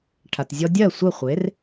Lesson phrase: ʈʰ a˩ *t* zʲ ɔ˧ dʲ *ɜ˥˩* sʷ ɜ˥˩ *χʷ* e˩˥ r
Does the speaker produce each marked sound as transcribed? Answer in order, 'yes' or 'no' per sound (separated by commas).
yes, yes, yes